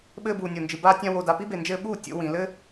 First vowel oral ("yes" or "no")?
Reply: yes